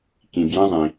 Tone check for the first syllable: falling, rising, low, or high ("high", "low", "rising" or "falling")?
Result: low